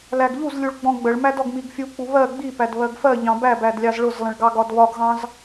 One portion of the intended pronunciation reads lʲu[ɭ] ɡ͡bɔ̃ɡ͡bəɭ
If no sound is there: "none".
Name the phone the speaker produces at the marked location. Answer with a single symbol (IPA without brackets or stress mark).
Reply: ɭ